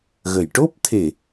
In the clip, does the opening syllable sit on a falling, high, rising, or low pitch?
low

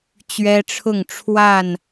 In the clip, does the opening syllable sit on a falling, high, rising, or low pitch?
high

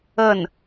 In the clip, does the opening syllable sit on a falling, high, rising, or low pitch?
falling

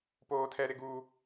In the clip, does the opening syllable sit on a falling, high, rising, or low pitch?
high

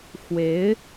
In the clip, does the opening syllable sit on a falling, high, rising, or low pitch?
rising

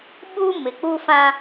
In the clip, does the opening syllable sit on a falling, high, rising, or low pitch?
high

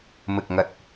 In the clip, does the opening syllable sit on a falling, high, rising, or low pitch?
low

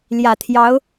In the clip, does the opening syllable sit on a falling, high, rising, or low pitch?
low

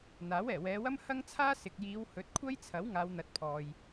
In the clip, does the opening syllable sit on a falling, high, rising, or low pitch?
rising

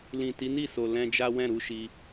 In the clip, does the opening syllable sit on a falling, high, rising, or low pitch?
low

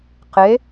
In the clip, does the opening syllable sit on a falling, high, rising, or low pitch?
rising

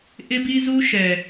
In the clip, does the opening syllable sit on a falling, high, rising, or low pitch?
high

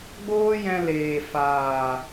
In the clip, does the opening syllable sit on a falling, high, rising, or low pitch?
high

